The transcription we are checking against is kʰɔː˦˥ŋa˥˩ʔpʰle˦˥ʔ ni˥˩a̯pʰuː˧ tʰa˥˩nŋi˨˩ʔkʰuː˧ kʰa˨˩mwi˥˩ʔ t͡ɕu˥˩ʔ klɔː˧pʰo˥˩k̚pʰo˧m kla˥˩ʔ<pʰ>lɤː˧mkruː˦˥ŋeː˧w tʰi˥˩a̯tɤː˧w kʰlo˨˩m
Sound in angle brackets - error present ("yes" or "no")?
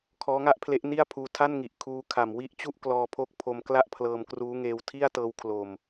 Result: no